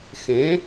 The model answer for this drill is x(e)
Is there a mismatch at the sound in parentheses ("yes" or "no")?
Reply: yes